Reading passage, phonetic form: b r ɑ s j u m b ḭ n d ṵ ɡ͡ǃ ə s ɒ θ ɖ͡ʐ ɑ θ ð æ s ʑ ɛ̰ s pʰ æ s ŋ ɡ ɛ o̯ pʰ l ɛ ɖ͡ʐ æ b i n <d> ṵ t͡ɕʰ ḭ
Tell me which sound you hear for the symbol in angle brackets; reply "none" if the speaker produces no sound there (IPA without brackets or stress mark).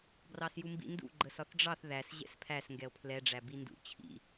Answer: d